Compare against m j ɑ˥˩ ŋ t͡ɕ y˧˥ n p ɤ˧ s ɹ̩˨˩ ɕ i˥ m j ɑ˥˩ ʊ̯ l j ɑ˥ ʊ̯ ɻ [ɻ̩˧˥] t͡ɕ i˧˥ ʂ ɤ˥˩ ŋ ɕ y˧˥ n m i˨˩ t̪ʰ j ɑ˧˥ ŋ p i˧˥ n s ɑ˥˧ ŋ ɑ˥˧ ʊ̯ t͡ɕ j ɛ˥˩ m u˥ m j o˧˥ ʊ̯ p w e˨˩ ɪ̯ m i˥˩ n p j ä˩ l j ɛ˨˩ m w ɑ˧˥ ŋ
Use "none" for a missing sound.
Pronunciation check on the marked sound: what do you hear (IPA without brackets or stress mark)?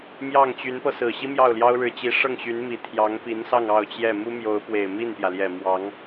ɻ̩˧˥